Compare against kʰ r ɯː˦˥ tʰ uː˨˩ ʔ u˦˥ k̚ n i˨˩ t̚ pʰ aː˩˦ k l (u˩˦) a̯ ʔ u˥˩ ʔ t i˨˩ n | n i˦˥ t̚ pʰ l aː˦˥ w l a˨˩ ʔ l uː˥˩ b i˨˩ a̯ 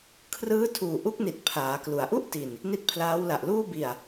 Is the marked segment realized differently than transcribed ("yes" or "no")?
no